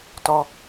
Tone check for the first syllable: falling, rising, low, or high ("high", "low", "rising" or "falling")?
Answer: high